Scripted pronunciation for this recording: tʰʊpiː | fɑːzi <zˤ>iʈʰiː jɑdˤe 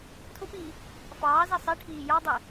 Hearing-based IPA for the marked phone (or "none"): sˤ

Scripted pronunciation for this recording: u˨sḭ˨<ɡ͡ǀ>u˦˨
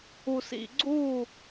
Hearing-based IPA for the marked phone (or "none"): ɡ͡ǀ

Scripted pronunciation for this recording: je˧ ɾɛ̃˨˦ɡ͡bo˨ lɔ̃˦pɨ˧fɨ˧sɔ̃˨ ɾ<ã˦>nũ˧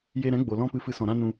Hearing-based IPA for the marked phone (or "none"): ã˦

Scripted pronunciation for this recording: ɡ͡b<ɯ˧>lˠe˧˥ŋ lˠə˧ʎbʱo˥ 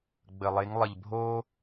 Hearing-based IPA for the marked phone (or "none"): ə˧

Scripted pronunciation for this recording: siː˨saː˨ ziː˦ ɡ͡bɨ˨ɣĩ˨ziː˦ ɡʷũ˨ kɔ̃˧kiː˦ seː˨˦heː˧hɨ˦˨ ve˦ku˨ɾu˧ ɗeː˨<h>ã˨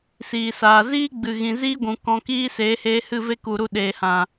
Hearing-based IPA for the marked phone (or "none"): h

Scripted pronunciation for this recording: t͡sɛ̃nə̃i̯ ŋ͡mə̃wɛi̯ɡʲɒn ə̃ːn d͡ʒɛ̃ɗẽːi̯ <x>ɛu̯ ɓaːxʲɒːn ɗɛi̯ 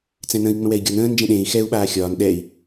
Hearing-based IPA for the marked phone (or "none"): x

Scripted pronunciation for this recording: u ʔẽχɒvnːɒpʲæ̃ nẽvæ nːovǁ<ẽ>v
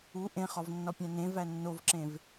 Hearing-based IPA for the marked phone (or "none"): ẽ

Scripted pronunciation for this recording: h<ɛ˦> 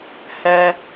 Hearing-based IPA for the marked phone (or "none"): ɛ˨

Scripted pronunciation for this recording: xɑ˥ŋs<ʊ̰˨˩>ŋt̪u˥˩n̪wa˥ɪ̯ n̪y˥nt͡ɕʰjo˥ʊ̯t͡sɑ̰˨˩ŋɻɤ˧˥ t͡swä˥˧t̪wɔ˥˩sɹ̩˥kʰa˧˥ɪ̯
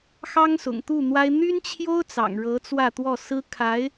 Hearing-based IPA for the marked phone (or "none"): ʊ̰˨˩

